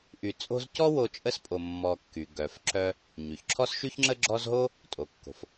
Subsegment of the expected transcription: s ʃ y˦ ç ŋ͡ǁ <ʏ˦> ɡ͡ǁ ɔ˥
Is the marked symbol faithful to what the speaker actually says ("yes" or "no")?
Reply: no